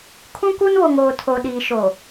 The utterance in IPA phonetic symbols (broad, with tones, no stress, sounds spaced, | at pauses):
kʰ ũ˦ k u˦ n β o˨ ŋ oː˨ tʰ o˨ ɗ iː˨ ʃ o˨